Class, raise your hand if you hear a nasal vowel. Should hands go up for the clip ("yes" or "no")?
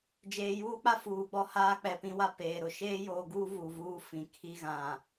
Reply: yes